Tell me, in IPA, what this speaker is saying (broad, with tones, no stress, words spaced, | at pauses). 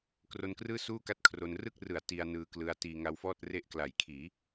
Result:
kro˧nkrɯː˥˩suː˥˩ka˦˥t̚ kʰro˧n rɯ˥˩k̚rɯ˩˦a̯ ti˧a̯nɯː˧klɯ˧a̯tiː˧ ŋa˧wfɔː˥˩t̚ re˥˩ʔ kla˩˦jkʰiː˩˦